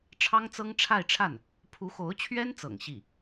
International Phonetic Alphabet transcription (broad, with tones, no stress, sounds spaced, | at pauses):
ʈ͡ʂʰ ɑ˥ ŋ t͡s ɤ˥ ŋ ʈ͡ʂʰ a˥˧ ɪ̯ ʈ͡ʂʰ a˥˩ n | pʰ u˧˥ x o˧˥ ʊ̯ t͡ɕʰ ɥ ɛ˥ n t͡s ɤ̰˨˩ ŋ ɕ i˥˩